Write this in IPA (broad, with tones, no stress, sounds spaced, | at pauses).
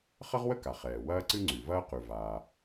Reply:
χ ə˥ ʁ w ə˥ k a˩ χ ɛː˩ w ɐː˥ ǀ ɨ˥ ŋ͡ǀ ʉ˩ v ɐː˥ q ʉ˩ v aː˩